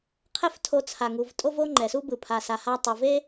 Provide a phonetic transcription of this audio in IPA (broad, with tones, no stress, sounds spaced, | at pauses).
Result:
qʰ ɛ˥ f tʰ o˧ t͡sʰ a˩ ŋ u˩ v tʼ o˥ v o˥ ŋ͡ǃ ɛ˩ s u˥ b ɯ˩ pʰ a˩ s a˩ h a˧ tˤ ɯ˩ v e˥